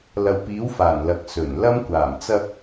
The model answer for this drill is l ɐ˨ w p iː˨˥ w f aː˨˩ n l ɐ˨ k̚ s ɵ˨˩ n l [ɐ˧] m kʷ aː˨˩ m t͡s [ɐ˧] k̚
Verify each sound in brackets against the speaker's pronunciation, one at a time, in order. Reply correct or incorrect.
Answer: correct, correct

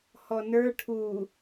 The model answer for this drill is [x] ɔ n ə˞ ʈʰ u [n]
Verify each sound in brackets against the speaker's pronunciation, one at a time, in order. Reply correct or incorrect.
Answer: incorrect: h, incorrect: none

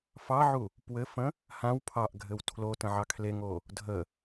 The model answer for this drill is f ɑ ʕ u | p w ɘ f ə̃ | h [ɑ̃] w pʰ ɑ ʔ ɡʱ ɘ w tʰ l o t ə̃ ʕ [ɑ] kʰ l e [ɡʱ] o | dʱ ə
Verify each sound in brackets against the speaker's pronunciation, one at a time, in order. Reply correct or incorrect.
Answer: incorrect: ã, correct, incorrect: ŋ

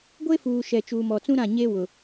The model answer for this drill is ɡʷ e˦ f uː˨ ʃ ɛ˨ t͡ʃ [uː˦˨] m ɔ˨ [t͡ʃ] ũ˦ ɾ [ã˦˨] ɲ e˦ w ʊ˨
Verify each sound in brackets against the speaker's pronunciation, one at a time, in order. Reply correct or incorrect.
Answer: incorrect: uː˨, incorrect: t͡s, correct

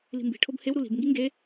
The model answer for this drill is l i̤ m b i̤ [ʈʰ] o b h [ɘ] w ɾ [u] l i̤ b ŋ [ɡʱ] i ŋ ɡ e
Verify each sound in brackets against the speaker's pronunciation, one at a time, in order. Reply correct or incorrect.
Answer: correct, incorrect: e, correct, incorrect: ɡ

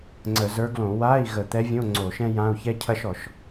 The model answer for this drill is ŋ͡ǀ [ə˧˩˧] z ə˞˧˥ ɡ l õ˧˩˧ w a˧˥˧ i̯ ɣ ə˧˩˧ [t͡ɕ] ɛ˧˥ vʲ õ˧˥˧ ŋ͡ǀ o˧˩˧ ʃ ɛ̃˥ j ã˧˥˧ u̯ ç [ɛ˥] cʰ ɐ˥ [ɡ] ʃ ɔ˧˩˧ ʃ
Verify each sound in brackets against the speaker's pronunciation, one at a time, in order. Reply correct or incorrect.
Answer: correct, incorrect: t̪, correct, incorrect: none

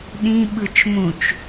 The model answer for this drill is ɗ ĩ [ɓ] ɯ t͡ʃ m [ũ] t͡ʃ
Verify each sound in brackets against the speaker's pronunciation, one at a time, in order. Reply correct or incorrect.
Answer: correct, correct

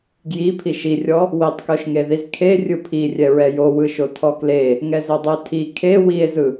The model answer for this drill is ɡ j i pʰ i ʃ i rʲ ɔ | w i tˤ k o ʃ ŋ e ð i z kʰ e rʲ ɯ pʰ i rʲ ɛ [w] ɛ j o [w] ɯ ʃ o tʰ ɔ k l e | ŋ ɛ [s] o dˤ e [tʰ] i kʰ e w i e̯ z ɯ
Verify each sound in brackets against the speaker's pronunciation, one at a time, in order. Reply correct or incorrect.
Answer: incorrect: ɹ, correct, incorrect: z, correct

